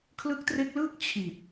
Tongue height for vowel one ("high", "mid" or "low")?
high